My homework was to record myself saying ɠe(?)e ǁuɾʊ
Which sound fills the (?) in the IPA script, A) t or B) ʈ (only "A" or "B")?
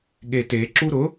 A